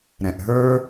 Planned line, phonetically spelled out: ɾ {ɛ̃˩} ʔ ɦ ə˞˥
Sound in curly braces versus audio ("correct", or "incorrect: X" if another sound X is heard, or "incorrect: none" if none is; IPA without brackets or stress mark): correct